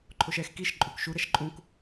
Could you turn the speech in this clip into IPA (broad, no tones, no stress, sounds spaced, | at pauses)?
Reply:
ǃʰ o ʃ ɛ x k i ʃ ǃʼ u k ʃ u ɾ ɛ ʃ ǃʼ ũ k